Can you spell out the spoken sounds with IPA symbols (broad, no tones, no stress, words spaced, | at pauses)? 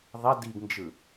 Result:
ðˤɐ diɡnd͡ʒɯ